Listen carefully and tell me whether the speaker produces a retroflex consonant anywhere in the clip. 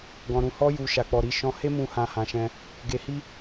no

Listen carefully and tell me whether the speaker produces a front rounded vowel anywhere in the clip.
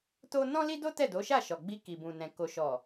no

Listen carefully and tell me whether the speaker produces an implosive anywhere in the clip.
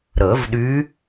yes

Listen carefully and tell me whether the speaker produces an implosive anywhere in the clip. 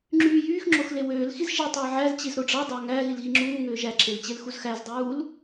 no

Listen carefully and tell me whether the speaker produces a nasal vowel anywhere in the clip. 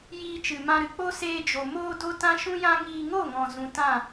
yes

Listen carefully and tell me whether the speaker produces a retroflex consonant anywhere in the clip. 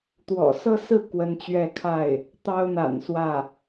no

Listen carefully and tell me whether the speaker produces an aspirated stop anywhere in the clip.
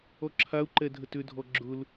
yes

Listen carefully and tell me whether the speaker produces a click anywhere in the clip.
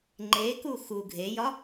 yes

